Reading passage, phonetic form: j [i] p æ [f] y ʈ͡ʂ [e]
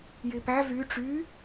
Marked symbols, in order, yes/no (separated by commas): yes, no, no